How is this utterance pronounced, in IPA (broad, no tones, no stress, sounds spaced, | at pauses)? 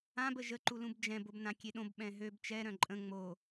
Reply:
ã b ə ʒ ə ǃ u l ũ b d͡ʒ ɛ̃ b o b n ã kʲ e ɗ õ b ɓ ɛ̃ ɦ ø b t͡ʃ ɛ ɾ œ̃ ǃʼ ə̃ ŋ͡m o